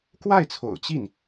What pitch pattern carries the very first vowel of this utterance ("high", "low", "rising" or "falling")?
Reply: falling